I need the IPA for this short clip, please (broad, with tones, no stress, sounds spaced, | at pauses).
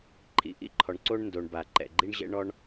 ǃʰ ḭ˩ ʔ ḭ˥ ǃʰ ɔ˩ ɳ ǀ o˥ ɳ n d o˩ ɳ b a˩ ǃ ɛ̰˩ ɡ͡ǃ i˥ ɳ ʑ ɛ̰˥ ɳ ɔ˥ ɳ